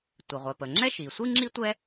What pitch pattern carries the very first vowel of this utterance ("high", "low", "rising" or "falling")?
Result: low